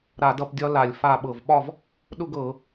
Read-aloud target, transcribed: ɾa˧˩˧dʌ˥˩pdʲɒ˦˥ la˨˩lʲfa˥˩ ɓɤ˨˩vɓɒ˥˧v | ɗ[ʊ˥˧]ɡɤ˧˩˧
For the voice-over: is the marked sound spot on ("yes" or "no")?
yes